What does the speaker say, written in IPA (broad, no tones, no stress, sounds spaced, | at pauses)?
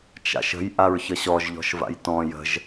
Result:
t͡ʃ a̰ ʃ ə̤ j ʔ a ɹ ç ə ɕ ɔ ʒ ʎ ɔ̤ ʃ v a̰ j t ɔ̃ j ə̤ ʒ